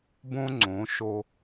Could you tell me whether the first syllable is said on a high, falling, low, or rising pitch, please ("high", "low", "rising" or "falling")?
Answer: high